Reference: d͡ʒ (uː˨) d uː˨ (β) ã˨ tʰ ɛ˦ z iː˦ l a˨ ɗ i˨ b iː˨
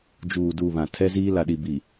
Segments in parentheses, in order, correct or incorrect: correct, correct

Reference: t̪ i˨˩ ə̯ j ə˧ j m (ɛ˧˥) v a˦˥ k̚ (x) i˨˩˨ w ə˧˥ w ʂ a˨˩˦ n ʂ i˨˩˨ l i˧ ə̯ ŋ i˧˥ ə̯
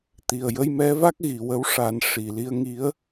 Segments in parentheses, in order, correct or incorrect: correct, incorrect

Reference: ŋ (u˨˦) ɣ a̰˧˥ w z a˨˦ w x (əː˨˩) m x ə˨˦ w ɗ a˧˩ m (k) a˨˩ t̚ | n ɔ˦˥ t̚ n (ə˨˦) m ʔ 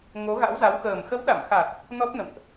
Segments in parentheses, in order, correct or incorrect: incorrect, correct, incorrect, incorrect

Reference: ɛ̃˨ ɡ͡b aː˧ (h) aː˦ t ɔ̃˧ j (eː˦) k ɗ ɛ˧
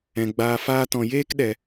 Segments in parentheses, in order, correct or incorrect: incorrect, correct

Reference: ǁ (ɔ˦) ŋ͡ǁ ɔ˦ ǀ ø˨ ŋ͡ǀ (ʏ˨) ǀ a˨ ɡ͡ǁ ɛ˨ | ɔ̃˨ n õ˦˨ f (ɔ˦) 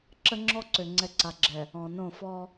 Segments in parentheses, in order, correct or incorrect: incorrect, incorrect, correct

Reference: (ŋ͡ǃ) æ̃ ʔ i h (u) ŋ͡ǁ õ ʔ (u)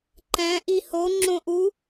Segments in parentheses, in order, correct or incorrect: incorrect, incorrect, correct

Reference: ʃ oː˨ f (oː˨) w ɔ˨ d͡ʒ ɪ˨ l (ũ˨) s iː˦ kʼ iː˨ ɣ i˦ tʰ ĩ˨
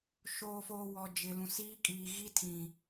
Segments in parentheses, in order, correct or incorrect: correct, correct

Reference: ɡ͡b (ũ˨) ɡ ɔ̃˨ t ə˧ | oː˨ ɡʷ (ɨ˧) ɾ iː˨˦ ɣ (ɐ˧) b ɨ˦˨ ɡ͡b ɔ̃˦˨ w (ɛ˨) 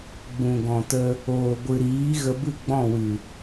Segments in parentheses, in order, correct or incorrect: correct, incorrect, incorrect, incorrect

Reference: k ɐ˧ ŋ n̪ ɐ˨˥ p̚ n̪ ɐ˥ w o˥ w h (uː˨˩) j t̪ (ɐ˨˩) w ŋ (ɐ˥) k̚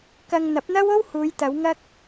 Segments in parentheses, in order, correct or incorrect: incorrect, incorrect, correct

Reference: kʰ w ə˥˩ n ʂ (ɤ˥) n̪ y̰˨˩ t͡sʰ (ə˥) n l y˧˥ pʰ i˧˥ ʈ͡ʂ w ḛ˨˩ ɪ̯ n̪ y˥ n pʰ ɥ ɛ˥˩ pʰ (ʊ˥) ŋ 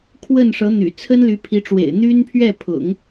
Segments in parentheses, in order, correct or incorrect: incorrect, correct, incorrect

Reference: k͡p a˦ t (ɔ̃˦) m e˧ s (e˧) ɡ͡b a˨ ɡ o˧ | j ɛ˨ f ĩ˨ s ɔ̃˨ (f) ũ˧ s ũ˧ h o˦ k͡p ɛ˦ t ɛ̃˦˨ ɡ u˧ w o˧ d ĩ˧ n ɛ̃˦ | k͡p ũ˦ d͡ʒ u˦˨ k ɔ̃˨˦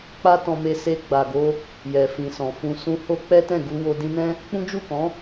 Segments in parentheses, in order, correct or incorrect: incorrect, correct, correct

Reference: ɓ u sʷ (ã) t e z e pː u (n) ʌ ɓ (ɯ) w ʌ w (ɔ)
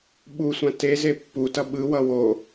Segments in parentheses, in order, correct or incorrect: correct, incorrect, correct, incorrect

